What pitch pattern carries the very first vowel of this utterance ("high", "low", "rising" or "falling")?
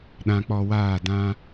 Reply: low